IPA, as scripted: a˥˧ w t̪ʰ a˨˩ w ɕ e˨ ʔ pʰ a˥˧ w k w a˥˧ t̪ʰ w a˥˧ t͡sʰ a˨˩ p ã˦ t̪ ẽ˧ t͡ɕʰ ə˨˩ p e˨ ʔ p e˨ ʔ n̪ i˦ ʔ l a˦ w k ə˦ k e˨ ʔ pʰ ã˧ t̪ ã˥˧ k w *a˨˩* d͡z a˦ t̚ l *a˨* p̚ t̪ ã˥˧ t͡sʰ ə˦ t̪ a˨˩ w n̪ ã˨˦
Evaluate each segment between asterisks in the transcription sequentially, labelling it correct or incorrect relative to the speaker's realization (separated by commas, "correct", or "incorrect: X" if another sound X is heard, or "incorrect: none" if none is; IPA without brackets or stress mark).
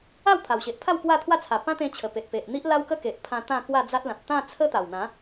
incorrect: a˥˧, incorrect: ã˨